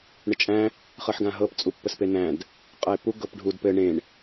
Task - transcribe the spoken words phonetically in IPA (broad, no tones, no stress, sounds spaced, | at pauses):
ɳ ə t͡ʃʼ æ̃ | χ ɤ ħ ɡ ã ɦ ɤ p t͡sʼ u pː ə s p e n æ̃ d | qʼ ɤ e̯ p u ɡ ɤ p ɖʱ u d p ɘ ɳ ẽ ɳ